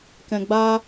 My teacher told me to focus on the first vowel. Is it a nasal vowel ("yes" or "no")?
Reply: yes